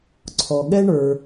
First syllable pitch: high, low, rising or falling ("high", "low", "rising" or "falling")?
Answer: low